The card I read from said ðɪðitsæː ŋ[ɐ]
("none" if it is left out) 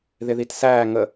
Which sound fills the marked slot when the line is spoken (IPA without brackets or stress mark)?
ə